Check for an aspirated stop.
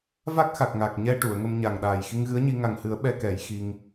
absent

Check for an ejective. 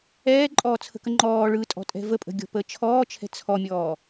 present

